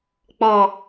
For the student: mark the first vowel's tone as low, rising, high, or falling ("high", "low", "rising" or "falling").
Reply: low